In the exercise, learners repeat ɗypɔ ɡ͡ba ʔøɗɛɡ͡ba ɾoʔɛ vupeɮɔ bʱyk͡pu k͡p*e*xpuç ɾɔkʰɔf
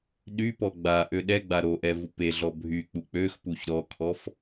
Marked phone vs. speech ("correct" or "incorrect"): incorrect